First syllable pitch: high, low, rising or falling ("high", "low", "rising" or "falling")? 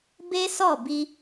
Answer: high